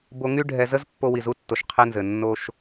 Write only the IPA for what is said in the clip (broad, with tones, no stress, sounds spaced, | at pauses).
b o˧ ŋ y˦ ɖʱ ɛ˧ z ə˦ z pː o˧ w i˨ z u˦ tː o˨ ʃ qʰ ɛ˦ n z ɘ˨ nː o˧ ʃ